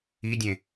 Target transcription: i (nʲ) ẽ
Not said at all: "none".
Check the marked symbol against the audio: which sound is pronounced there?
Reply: dʲ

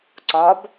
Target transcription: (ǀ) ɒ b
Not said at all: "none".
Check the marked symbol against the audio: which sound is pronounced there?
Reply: ǀ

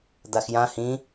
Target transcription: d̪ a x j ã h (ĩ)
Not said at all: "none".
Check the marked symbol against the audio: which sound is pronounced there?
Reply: ĩ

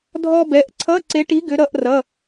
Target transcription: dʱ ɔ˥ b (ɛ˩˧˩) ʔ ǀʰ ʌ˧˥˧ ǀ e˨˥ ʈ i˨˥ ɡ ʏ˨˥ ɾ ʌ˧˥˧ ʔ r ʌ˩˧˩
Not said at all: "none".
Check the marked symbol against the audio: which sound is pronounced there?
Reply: ɛ˩˧˩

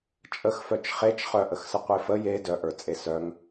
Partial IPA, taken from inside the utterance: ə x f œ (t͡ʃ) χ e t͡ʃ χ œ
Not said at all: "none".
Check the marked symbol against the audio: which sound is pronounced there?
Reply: t͡ʃ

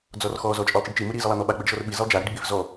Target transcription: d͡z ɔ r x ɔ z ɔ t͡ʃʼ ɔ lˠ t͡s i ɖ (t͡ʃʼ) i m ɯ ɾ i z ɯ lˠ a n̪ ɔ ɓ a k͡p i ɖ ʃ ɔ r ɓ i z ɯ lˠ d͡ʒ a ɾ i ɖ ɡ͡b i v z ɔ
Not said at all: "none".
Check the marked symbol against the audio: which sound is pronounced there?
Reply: t͡ʃ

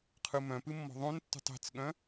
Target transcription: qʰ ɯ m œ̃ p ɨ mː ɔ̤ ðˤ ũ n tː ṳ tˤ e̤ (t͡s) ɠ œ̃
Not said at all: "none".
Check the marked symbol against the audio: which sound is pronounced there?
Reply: t͡s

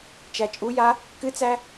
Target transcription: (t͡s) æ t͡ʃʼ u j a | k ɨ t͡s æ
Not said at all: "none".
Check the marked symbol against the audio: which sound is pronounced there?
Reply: t͡ʃ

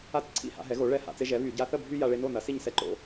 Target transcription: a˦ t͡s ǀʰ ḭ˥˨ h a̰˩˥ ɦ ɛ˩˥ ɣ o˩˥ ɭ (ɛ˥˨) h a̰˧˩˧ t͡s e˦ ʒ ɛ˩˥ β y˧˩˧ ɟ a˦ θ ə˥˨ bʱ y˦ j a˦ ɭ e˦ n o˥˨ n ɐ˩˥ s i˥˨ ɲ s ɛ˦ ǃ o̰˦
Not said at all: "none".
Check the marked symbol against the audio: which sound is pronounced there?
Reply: ɛ˥˨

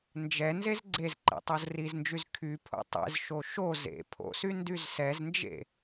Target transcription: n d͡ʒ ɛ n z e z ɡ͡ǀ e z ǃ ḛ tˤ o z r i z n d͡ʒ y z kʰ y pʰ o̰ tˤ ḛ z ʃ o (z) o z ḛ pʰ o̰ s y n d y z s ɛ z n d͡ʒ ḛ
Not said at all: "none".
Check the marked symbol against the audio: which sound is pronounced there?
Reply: ʃ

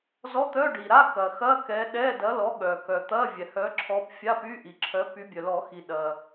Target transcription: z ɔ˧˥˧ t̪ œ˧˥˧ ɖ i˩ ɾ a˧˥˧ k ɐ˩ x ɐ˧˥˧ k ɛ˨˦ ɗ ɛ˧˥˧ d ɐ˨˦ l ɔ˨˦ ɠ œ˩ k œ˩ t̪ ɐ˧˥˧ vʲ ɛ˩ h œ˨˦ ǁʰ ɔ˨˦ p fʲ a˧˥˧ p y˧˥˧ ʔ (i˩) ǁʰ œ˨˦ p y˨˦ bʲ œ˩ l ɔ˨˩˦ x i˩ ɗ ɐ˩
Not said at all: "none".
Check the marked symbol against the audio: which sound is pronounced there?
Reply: i˩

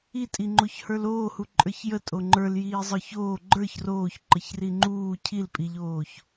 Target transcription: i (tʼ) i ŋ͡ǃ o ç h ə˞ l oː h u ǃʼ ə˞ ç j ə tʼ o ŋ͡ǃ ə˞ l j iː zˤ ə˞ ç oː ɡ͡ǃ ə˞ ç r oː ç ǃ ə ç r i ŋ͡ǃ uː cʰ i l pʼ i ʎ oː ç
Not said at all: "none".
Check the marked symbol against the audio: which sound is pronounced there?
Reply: tʼ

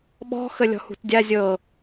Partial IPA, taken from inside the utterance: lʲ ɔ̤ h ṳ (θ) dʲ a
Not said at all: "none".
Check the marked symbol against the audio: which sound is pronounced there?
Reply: t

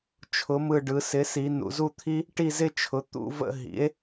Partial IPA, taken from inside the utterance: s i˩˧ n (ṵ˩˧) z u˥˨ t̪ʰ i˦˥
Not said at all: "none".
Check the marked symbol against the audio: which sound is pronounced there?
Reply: ṵ˩˧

